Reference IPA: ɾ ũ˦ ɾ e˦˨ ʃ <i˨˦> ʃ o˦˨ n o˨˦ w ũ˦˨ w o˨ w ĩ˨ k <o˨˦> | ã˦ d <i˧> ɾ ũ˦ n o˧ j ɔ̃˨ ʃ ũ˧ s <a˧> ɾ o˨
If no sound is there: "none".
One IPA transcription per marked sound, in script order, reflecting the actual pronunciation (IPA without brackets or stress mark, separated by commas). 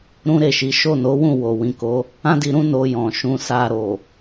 i˨˦, o˨˦, i˧, a˧